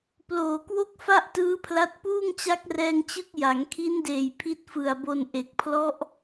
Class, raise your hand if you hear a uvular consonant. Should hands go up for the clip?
no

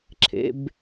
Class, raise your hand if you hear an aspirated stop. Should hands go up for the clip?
yes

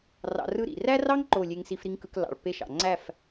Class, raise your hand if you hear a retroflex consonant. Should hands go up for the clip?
yes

